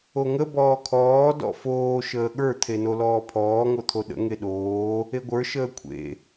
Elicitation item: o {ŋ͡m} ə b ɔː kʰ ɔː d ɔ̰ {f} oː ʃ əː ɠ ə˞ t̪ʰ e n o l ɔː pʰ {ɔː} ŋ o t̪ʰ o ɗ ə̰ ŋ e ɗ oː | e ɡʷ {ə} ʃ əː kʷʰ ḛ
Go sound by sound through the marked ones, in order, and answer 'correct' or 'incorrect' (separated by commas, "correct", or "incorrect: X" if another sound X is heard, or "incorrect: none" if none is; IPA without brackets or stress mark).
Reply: incorrect: ŋ, correct, correct, incorrect: ə˞